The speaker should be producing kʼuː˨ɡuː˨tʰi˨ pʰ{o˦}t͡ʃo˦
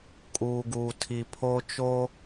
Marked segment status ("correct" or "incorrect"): correct